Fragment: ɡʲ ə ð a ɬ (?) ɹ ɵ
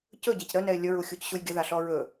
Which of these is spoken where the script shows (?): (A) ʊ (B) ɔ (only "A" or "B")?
B